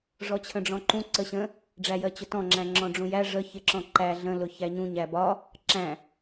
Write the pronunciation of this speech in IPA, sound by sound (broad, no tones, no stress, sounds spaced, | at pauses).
ʐ ɔ t͡ɕʰ ə̃ ɖ͡ʐ ɔ̃ ǃ ũ ǀ ə ɕ ə̃ | ɖ͡ʐ æ j ɜ t͡ɕ ʊ t ɔ̃ ŋ͡ǁ æ̃ ŋ͡ǁ ɔ̃ ɖ͡ʐ ũ j æ ʐ ə ç ɪ ǁ ɔ̃ ǃ æ ɮ ə̃ l ʊ ç æ ɲ ũ ɲ æ b ɒ | ǁ æ̃